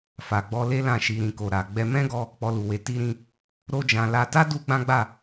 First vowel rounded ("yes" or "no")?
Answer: no